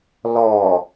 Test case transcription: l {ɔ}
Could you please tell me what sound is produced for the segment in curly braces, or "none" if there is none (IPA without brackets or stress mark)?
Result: ɔ